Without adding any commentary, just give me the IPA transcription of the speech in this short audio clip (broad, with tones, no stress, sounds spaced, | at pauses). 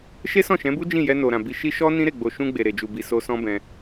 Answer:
ʃ e˦ s ɔ̃˦˨ ʃ ɛ̃˨˦ b u˦ d͡ʒ ĩ˦˨ j ɛ˧ n o˨ ɾ ã˨ b i˧ ʃ i˧ ʃ ɔ˦ n ĩ˦ ɾ e˦˨ ɡ͡b o˨ ʃ ũ˧ ɡ͡b e˨ ɾ e˨ d͡ʒ u˨ b i˨ s o˧ s ɔ̃˦ b ɛ̃˧